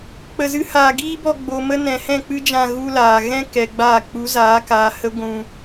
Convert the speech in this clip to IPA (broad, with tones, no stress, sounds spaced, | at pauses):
k͡p ə˧ z ɨ˦ h aː˧ ɡ iː˦ b ɔ˧ ɡ͡b o˨ m ə˦ n ɛ̃˨ h ɛ̃˦˨ k͡p ɨ˦ d͡ʒ ã˧ ɣ u˦ l aː˨ ɣ ɛ̃˦ k ɛ˨ ɡ͡b aː˦˨ k͡p u˨˦ z aː˨˦ k aː˨ h ə˦ ɡʷ ũ˧